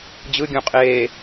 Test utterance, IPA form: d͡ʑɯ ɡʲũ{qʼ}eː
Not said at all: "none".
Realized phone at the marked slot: qʼ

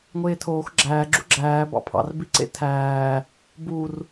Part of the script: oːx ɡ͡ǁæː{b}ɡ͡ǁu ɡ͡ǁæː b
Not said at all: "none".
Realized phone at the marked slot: none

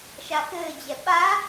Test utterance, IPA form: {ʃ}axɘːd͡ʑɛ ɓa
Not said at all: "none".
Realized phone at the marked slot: ʃ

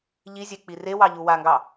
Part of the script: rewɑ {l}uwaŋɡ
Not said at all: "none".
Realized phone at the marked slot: ʎ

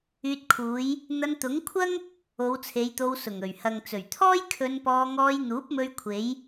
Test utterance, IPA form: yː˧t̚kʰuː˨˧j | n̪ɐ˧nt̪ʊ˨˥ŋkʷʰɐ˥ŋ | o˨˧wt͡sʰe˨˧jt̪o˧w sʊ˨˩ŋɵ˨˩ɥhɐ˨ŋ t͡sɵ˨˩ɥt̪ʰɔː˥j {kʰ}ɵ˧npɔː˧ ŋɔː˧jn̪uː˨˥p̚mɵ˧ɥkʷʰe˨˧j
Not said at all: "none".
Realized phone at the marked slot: kʰ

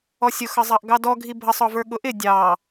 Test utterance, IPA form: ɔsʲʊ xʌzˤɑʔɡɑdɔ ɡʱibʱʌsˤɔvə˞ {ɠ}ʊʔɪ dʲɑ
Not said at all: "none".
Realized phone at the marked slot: ɠ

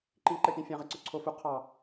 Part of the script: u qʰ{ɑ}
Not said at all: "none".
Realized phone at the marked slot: ɑ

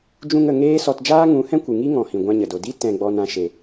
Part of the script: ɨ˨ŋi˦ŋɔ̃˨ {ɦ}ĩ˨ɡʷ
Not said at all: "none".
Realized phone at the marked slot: h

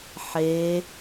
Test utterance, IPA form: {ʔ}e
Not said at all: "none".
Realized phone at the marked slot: ħ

